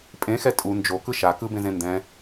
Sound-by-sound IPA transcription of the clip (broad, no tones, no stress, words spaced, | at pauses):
pʼẽxɛ tʼu nd͡ʒo kɯʃa kɯbẽzẽ ndɛ̃